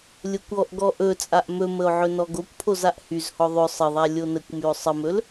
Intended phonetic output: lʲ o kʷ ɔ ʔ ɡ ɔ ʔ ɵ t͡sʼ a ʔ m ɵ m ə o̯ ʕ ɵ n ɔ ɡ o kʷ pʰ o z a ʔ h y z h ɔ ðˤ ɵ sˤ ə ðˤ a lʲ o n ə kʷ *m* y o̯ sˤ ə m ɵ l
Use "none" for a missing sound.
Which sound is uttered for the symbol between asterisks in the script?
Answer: m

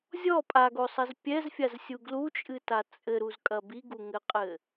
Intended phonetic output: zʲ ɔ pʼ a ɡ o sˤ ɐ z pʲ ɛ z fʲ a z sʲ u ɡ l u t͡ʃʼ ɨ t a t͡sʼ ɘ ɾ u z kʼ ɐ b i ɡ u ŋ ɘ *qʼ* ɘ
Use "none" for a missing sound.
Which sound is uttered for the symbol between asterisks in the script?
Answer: qʼ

